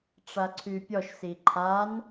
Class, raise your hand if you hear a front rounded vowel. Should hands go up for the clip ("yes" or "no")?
yes